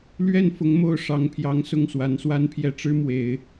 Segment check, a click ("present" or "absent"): absent